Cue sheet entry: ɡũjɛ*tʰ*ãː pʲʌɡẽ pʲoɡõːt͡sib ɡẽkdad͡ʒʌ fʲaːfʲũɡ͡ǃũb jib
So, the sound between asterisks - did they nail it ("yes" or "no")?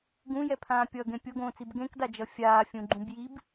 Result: no